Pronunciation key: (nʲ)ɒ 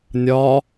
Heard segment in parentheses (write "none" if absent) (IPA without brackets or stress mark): nʲ